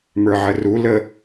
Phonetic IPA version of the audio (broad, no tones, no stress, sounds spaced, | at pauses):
m ə˞ ʕ ə r u l ə